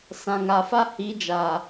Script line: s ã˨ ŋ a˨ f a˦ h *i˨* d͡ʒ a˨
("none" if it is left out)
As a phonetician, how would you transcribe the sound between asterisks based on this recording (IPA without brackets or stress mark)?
i˨˦